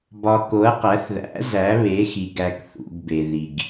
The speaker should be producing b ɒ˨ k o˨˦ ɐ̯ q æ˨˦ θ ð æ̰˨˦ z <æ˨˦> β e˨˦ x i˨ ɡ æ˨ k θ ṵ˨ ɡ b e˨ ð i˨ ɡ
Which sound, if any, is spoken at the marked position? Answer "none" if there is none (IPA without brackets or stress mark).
æ˨˦